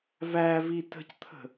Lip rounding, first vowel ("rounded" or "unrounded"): unrounded